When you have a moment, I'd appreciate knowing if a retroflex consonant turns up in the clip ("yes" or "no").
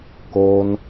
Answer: no